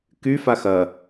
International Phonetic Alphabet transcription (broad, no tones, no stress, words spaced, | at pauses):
ky faxɐ